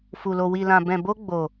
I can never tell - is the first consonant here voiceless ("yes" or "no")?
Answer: yes